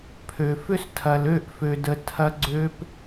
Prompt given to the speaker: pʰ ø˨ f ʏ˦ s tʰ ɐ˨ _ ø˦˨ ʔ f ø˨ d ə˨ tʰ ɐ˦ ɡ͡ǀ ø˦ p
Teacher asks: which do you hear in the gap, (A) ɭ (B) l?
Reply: B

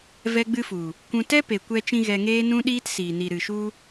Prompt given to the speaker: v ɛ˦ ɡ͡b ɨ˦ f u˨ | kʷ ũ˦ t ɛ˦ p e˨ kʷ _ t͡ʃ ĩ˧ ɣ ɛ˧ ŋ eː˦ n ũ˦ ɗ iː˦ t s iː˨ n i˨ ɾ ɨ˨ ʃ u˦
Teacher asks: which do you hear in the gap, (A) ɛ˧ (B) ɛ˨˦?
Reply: A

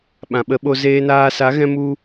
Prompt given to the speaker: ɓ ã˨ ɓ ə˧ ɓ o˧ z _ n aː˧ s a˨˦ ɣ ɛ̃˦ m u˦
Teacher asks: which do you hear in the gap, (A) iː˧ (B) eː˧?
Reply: B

